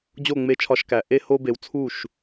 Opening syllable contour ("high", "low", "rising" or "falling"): falling